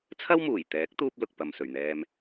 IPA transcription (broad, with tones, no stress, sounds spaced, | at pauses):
t͡sʰ ɐ˥ w m uː˨˩ j t̪ ɛː˨˥ k̚ t̪ uː˥ p̚ l ʊ˨ k̚ p ɐ˨ m s ɵ˨˩ ɥ n̪ ɛː˧ m